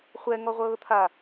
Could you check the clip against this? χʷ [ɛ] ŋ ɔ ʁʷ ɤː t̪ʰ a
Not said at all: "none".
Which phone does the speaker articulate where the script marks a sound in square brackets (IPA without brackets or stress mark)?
ɛ